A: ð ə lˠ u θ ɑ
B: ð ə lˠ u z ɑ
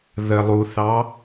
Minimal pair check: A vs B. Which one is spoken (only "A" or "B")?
A